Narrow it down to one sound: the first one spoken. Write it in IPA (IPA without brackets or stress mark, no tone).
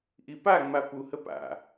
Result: ʔ